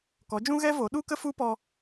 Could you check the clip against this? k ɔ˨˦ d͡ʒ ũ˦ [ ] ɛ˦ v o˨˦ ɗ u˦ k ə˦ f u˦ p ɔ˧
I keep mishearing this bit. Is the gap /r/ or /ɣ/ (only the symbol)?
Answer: ɣ